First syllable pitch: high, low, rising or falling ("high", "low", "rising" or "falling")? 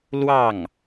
falling